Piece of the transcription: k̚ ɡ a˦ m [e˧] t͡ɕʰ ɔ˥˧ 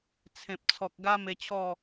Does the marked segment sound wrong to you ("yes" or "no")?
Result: no